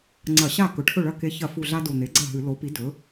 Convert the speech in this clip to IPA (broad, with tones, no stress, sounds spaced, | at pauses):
ŋ͡ǀ ɐ˧˩˧ ɕ a˥˩ k ɵ˩˥ ʈʰ ɵ˥˩ ɭ ɐ˥˩ k e˧˥ ç ɐ˧˩˧ f u˨˩ ɮ a˧ d o˨˩ n̪ e˩˥ ɡ͡ǀ ɐ˥˩ ɦ ɨ˧˩˧ l o˩˥ p i˩˥ d ɵ˩˥